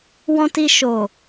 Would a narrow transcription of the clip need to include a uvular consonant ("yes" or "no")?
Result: no